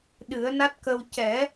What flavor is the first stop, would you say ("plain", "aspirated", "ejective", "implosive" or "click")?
implosive